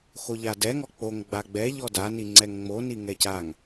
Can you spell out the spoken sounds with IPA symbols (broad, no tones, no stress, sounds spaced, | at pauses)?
x o ʎ a d ɛ ŋ ɔ k͡p o ŋ ɡ͡b a ɡ͡b ɛ ʎ ɔ d a n i ŋ͡ǀ ɛ ŋ ŋ͡m o n i ŋ ɛ c a ŋ